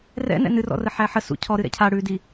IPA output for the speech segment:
r ɛ̰ n ɛ̰ n ɨ r ɔ̰ r ə ħ æ ħ ə s ṵ cʰ ɔ ɾ ɨ ɾ ɛ̰ cʰ a ɽ ʉ d i

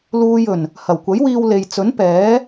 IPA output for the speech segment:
l uː˧ j ɵ˨˩ n | h ɐ˨˩ w kʷ ɐ˨˥ j w iː˧ w l e˨ j t͡s ɵ˨˥ n p ɛː˨˥

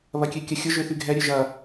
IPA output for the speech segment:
β ɐ kʲ ø kʲ ɐ xʲ ʊ ʒ ø θ y ɡʱ ɛ ɾʲ ø ʒ ɐ

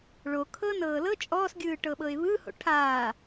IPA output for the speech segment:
ɭ o kʰ ɤ n ɤː l ɤ t͡ʃʼ ɔː s ɡʲ ɯː ʈ ɤ ɓ ɤ ɪ̯ β ɯ h o̰ ʈʰ aː

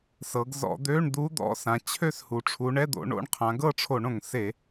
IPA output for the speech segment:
s ɤ˩˧ ɡ z ɔ̰˧˩˧ d̪ ø˧˥˧ ɳ d̪ u˧˥ d̪ ɔ̰˧˥ s ã˩˧ t͡ɕʰ ø˥˧ s h u˩ ʈ͡ʂʰ u˩˧ ɳ ɛ˧˥˧ d̪ o̰˩˧ ɳ o̰˧˥˧ ɳ qʰ ã˩˧ ɡ ɤ˥˧ ʈ͡ʂʰ o˧˩˧ ɳ õ˩ ŋ s e˧˩˧

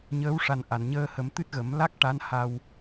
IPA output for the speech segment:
ɲ əː˧˥ w ʂ a˨˩ n ʔ a˨˩˨ n ɲ əː˧ h ə˨˩˦ m t̪ ɨ˦˥ t̚ ɣ ə˨˩˦ m l a˦˥ k̚ ʈ a˧˥ n h a˧ w

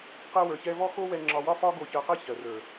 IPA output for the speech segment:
q ɛ˦ w ə˞˧ ç ɛ˦ v ɔ˦ x o˦ w ɛ˧ ŋ͡ǁ ɒ˧ w ɒ˦ f ɒ˦ ɡ o˧ ç ɜ˧ q ɛ˦ ç ɜ˨ r ə˞˨

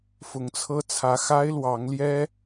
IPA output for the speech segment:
f ʊ˧˥ ŋ t͡sʰ ɤ˥ t͡sʰ ä˧˥ x a˥ ɪ̯ l w ɑ˧˥ ŋ l j ɛ˥

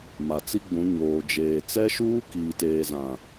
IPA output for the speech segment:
m a˨ t͡s i˦ ɡ͡b ũ˨˦ ɲ oː˨ d͡ʒ eː˨ t͡s ɛ˦ ʃ uː˦ k iː˨ t eː˨ z ã˨

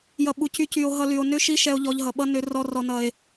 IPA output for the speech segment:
j ʌ˨ ɓ u˨ c y˧ c y˨ o̯ ɦ ʌ˧ l y˨ o̯ n ʏ˦ ʃ i˦ ʃ ɛ˧ o̯ ʎ ɔ˧ ʎ ɦ ʌ˨ ɓ ʌ˦ n ʏ˧ r ɔ˧ r ɔ˨ n ʌ˨ e̯

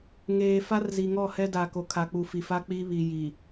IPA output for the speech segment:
ŋ eː˨ f a˦ r z i˨ ŋ ɔ˦˨ h ɛ˦ d a˨ k o˨ kʰ a˨ k͡p u˨ f i˨ f a˦ k͡p i˦ β i˨ j i˨

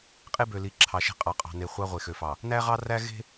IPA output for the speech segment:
qʼ e˦ b ø˨ l i˨ ǁʰ ɑ˨ ʃ e̤˦ qʼ ɑ˨ qʼ ɑ̤˨ n e˨ χʷ ɑ˦ ʁʷ e˨ x ø˨ f ɑ˨ | n æ˦ ʁ ɑ˦ r æ˦ ɣ e̤˦

